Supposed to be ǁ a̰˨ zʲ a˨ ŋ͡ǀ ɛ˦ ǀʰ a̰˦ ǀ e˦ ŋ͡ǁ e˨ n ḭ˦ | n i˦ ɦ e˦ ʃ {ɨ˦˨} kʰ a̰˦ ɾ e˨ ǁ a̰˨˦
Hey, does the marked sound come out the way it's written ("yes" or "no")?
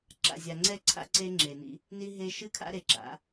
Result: yes